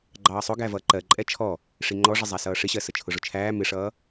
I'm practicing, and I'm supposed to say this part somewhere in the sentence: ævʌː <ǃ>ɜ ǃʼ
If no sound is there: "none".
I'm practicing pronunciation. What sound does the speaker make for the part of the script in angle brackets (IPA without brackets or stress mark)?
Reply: ǃ